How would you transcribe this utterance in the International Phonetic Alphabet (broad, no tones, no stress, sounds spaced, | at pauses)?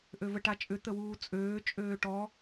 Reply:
ʔ ø v ə ʈ a t͡ʃʼ ʏ t̪ ə w uː t͡sʼ øː t͡ʃʼ øː ʈ ɔ